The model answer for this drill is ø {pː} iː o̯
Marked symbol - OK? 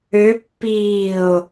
yes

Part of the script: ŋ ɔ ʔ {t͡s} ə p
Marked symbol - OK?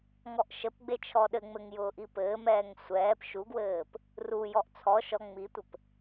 no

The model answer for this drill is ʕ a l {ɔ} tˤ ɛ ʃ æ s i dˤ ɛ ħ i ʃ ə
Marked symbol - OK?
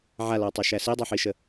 yes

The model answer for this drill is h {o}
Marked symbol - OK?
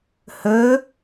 no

